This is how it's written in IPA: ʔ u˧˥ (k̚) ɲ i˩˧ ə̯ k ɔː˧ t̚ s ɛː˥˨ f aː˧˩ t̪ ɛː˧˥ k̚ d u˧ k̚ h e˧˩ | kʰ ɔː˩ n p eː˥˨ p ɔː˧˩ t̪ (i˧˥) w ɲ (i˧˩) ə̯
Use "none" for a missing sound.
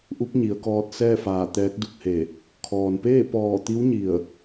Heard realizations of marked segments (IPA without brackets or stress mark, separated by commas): k̚, i˧˥, i˧˩